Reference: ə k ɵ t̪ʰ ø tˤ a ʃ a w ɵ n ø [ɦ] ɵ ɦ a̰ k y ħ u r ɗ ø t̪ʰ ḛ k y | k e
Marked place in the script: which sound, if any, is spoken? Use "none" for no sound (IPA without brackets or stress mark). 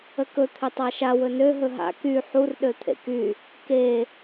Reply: ɦ